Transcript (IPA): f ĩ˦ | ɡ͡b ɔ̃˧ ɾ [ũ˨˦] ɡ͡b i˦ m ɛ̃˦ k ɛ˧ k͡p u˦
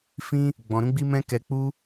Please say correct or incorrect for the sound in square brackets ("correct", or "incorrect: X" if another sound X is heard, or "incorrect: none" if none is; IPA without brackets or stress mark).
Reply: incorrect: ũ˦